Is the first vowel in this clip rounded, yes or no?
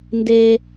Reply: no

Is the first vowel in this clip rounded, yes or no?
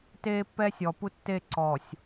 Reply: no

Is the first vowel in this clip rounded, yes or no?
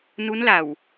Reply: yes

